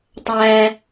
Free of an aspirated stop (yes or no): yes